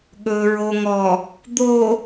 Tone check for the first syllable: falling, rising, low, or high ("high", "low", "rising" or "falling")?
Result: low